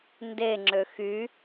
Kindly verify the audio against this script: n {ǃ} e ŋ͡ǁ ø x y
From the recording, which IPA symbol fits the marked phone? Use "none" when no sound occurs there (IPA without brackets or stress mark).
d